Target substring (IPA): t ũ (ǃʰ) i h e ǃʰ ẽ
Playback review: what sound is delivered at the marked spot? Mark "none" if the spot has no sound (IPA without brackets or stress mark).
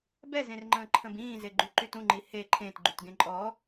ŋ͡ǃ